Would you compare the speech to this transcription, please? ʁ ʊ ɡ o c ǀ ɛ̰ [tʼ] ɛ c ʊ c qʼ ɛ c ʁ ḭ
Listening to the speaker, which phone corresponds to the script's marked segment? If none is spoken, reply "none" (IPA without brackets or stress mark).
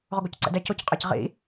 d